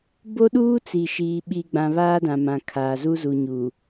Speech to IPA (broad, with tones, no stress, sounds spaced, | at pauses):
b o˦ ɗ uː˦ t͡s i˨ ʃ iː˨ ɓ i˨ ɡ͡b ã˨ β aː˦ d ã˨ m ã˨ kʰ aː˨ z u˦ z u˨ ɲ u˨